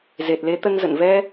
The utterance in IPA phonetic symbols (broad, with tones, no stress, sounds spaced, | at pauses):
z e˨˩ t̚ l e˨˦ t̪ ə˧ n z ə̰˧˨ n v ɛ˧